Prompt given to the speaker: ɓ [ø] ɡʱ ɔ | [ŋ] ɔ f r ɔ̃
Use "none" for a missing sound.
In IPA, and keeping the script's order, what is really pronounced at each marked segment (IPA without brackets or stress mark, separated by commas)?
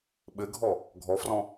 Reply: ɘ, ɡʱ